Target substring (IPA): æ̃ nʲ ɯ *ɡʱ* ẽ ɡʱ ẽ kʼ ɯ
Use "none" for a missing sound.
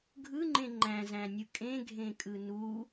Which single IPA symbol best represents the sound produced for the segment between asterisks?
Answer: kʼ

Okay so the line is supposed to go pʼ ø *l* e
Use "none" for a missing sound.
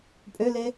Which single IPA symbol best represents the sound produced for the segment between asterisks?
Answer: l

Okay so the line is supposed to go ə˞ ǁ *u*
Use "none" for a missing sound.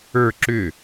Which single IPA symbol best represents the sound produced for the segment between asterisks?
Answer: ʏ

